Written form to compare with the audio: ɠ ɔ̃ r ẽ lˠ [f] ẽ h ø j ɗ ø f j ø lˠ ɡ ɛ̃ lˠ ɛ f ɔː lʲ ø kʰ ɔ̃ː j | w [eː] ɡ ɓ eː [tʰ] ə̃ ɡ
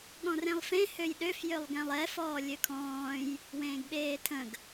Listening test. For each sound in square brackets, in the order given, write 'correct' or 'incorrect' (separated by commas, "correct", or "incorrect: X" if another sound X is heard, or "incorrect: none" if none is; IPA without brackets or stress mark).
correct, incorrect: ẽː, correct